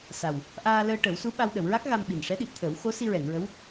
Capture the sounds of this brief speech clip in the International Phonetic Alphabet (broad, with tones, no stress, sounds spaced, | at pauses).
s a˨˩ w | ʔ aː˧ l əː˧ ʈ ə˨˩˦ w s u˧˥ ɓ a˧ w ɗ ə˨˩˨ w ɹ a˦˥ k̚ ɣ a˧ m ɓ i˨˩ n ʂ ɛ˧˥ ɗ i˨˩ p̚ t̪ʰ əː˨˩˦ w x o˧˥ s i˧ ɹ ɛ˨˩˨ ŋ ɹ ə˧˥ w